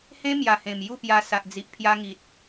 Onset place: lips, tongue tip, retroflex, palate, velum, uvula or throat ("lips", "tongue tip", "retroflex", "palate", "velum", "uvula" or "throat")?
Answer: throat